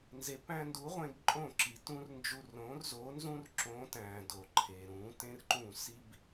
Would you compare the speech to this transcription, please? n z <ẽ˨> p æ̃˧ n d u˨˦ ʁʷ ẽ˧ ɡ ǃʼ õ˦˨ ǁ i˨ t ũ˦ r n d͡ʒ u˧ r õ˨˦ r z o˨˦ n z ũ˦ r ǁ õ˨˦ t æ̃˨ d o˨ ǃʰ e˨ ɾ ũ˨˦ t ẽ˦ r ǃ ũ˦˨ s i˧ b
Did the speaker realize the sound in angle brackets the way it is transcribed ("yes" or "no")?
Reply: no